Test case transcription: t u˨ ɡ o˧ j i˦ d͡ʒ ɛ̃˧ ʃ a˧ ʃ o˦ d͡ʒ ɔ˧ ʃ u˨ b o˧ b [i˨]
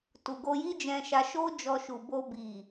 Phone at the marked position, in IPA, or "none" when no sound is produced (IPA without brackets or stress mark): i˨